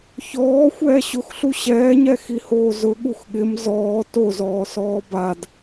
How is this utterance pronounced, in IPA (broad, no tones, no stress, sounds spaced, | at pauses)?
ç ɔː xʷ ɛː ɕ ʊ x ɬ u ɕ ɛː ɲ ɛ x i h oː z ʊ ɠ u x ɠ ɪ m z ɔː t o z ɔː s ɔː b a d